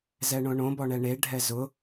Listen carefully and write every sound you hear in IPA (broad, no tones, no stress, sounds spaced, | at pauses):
z ɛ ɳ õ ɳ õ b ɔ ɳ ɛ ɳ e ɖʱ ɛ z ʊ